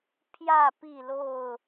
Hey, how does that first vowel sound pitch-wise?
falling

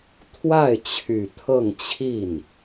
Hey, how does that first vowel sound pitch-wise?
falling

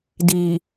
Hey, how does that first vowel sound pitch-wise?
low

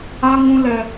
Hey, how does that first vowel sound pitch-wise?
high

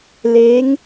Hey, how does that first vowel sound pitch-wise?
rising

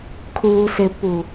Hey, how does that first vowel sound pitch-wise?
low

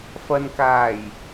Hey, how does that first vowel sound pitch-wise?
low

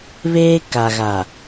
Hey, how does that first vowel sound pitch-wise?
high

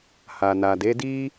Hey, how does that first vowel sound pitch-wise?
low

